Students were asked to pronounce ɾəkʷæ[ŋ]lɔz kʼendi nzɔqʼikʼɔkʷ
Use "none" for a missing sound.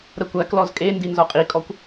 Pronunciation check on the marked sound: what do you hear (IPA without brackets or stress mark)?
k